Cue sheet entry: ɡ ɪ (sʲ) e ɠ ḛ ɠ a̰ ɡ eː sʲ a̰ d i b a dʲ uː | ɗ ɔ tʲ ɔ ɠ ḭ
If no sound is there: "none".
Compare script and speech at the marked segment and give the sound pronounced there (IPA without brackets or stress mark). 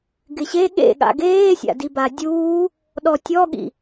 ɕ